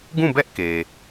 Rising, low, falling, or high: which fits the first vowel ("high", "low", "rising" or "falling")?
falling